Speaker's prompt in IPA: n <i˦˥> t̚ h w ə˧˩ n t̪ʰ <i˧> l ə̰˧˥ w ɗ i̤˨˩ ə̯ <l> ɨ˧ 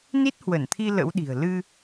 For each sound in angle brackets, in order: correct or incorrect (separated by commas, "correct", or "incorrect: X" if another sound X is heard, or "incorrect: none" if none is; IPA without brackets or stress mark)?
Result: correct, correct, correct